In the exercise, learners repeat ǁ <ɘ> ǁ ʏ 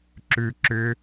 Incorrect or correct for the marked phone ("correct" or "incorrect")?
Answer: incorrect